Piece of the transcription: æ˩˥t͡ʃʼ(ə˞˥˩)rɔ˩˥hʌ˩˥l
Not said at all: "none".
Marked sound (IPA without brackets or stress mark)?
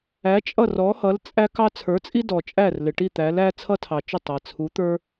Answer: ʌ˥˩